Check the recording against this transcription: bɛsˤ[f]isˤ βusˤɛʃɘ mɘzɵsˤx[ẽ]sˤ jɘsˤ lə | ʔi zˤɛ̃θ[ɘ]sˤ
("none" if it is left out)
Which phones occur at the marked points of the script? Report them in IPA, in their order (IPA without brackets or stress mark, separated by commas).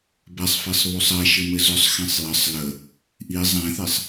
f, ɛ̃, e